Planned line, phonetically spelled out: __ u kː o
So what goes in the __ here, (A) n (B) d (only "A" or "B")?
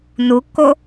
A